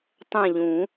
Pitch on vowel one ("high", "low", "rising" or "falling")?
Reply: falling